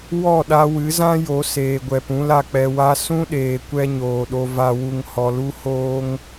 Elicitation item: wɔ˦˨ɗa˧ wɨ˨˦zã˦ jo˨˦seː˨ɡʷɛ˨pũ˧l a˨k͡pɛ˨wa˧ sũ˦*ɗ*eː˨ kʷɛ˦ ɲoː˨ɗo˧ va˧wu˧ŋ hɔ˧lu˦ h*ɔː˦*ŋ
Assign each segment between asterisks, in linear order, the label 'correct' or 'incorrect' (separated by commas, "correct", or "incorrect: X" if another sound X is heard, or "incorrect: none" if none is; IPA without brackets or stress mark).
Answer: correct, incorrect: oː˦